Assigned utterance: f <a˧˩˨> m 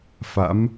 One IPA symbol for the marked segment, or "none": a̰˧˥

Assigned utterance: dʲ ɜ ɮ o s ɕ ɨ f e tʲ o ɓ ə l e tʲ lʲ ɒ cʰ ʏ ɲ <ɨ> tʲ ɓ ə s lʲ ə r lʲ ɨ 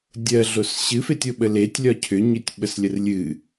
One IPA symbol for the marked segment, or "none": ʏ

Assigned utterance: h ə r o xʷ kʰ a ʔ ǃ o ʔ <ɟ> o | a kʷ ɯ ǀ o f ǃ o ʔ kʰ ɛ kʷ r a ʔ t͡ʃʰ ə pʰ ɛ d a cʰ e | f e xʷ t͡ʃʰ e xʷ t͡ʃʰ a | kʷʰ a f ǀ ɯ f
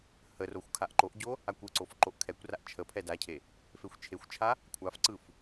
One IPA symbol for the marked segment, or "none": ɟ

